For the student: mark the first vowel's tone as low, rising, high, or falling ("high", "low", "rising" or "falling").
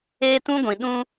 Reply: high